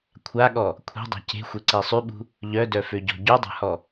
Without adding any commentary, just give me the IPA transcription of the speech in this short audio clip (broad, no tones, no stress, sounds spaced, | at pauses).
kʷʰ a ɠ ɔ | kʷʰ e̤ dˤ a̤ c e̤ xʷ e ǀ e sˤ y ɓ ṳ | ʎ œ d œ f ø ɟ ɔ̤ ɟ u dˤ a̤ h ɔ